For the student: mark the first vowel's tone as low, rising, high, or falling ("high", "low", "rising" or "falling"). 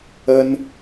high